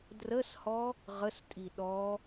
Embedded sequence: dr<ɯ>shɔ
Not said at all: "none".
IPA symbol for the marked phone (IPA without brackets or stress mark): ə